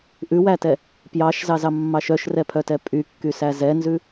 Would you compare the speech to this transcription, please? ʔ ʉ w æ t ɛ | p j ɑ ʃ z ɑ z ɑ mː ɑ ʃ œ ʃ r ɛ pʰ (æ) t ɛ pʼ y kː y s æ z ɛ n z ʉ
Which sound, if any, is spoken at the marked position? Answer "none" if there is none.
œ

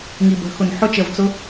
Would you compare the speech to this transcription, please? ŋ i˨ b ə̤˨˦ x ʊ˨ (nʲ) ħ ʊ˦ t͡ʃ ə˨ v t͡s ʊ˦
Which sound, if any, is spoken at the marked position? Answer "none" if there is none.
n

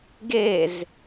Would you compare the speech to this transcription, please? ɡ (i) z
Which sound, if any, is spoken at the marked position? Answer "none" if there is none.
e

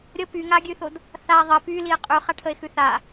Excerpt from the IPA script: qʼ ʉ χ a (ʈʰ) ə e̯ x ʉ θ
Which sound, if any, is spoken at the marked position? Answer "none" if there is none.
ʈʰ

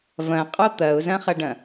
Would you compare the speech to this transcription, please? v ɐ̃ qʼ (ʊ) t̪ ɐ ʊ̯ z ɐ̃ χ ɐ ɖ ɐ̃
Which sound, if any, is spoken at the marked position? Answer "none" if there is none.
ɔ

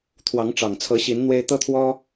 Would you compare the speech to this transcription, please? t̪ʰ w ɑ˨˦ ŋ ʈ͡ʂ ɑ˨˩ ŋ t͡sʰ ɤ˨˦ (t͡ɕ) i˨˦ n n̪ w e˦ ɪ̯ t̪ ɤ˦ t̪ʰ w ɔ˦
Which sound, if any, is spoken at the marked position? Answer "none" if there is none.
ɕ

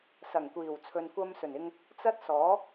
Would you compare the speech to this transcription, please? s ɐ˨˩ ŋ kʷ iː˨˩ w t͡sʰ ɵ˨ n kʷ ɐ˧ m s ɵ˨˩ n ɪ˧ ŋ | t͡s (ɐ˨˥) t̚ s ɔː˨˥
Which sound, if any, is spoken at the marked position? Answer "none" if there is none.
ɐ˥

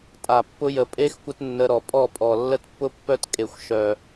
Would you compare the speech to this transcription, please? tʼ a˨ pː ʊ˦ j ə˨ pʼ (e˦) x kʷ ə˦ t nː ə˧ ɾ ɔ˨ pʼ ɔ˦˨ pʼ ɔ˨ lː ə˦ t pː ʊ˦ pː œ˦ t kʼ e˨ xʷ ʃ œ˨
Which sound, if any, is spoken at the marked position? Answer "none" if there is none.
e˦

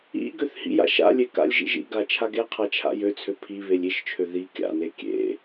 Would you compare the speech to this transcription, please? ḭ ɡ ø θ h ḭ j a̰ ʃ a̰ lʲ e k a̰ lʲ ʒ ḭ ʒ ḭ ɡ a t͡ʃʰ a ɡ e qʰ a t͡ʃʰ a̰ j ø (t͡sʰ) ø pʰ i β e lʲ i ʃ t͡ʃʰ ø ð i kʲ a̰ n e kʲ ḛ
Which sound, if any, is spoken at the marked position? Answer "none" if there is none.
t͡sʰ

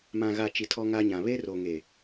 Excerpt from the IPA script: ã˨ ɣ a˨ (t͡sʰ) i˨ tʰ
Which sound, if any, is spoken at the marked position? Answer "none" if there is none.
t͡ʃ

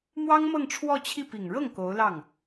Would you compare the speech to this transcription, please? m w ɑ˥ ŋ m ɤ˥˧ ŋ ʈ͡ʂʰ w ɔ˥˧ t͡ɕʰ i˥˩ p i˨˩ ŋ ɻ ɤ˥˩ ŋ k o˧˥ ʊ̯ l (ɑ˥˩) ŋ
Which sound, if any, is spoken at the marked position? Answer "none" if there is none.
ɑ˥˩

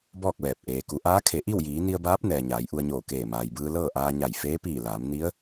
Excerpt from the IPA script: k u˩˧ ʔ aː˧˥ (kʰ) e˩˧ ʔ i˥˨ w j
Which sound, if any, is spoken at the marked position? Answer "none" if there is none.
kʰ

